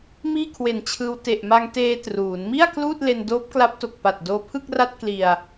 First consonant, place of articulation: labial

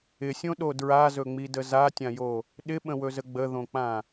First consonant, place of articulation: alveolar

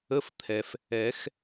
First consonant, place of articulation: labial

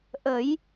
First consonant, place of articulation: glottal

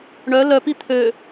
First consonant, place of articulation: retroflex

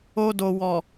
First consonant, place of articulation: alveolar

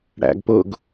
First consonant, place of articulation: retroflex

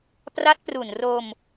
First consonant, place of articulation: labial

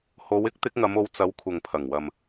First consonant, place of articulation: glottal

